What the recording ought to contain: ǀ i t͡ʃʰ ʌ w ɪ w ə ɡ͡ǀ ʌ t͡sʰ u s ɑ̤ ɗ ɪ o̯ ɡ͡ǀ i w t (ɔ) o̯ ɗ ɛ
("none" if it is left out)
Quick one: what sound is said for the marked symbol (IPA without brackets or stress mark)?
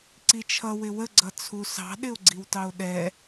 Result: ɑ